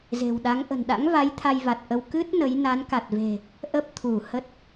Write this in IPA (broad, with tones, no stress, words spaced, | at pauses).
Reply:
ze̤˨˩wɗa˨˦ŋ ʔə̤˨˩nɗa̰˧˥ŋva˨˦j t̪ʰa˧jva˨˩t̚ʔə˧w kɨ˦˥t̚ nə˨˦j na˨˦nka˨˩t̚ve̤˨˩ | ʔə˦˥p̚ t̪ʰu˧˩hə˦˥t̚